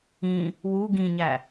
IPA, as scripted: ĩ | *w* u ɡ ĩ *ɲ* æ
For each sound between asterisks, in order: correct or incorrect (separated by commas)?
correct, correct